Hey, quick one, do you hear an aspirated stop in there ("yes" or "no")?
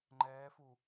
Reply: no